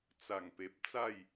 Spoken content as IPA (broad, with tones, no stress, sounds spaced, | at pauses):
t͡s a˨˩ ŋ p e˨ p̚ t͡s a˥˧ j